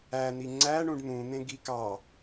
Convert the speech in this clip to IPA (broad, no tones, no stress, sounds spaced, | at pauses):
æ n̪ i ŋ͡ǀ æ ɳ ũ ɖ n̪ ũ n̪ ẽ ɡ i k ɑ